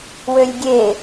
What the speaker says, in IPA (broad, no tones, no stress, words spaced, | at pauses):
wølʲɡʲe